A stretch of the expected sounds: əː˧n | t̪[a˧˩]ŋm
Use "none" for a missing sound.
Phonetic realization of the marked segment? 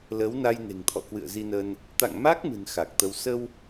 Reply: a̰˧˨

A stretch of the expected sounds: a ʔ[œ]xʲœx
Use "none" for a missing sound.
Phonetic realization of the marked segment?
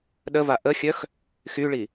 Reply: ə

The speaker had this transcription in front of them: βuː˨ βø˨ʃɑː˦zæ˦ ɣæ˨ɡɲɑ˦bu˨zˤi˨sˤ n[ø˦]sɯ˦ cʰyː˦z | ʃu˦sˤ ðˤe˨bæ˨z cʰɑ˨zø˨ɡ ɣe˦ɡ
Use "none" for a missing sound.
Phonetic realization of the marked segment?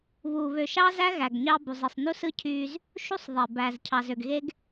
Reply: u˦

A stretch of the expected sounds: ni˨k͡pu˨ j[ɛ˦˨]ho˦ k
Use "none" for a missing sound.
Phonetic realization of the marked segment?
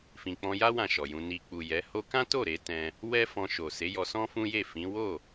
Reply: ɛ˨˦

